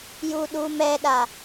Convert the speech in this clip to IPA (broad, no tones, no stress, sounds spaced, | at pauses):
j u ɗ u m ɛ ɗ a